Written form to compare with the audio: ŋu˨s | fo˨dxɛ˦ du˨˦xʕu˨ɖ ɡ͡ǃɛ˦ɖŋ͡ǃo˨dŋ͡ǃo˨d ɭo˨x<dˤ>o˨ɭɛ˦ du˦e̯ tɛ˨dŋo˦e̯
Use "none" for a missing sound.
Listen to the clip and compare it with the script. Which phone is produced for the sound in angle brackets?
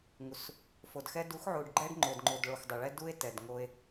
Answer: dˤ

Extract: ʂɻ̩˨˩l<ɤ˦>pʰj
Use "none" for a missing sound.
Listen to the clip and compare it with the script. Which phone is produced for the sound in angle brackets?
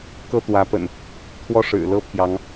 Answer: ɤ˦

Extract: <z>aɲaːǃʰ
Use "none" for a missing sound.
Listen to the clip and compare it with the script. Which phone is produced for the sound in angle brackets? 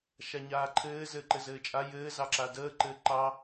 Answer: ʃ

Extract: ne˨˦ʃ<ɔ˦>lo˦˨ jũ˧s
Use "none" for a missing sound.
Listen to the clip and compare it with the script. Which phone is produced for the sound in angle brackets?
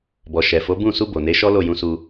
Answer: ɔ˦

